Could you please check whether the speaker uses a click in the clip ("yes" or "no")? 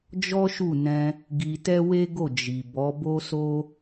no